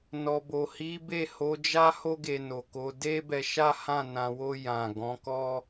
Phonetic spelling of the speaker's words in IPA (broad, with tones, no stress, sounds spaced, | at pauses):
n ɔ˨ b o˨ h i˨˦ b e˦˨ h o˨˦ d͡ʒ a˦ h o˦ ɡ e˧ n o˨ k o˨˦ d e˦ b ɛ˧ ʃ a˦ h ã˦˨ n ã˧ w o˦ j ã˦˨ ɡ ɔ̃˨˦ k ɔ˦